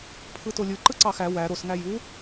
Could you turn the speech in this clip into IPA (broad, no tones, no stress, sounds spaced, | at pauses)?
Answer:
pʰ ɯ t o lʲ ɯ ǃ ɯ ǀ ɑ x æ w æ ɾ o s ŋ æ j u